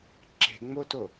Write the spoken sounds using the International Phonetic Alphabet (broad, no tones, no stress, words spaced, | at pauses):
ǁe̤ŋ͡moto